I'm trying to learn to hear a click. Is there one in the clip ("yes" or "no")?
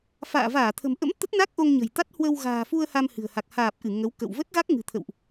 no